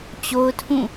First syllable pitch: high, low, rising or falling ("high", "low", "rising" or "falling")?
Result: high